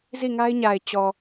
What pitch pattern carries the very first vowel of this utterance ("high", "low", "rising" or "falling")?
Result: falling